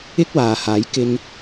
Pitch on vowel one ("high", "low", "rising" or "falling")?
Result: high